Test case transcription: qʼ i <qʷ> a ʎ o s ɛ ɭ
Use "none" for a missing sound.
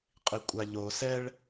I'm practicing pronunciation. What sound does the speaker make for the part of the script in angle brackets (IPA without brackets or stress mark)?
kʷʼ